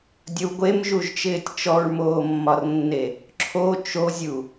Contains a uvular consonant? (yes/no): no